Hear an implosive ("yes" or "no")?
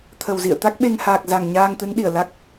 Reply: yes